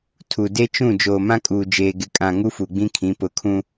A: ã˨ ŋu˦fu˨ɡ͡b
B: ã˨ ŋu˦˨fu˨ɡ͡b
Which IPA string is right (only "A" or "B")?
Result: A